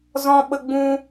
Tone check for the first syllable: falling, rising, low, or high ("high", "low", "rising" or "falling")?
high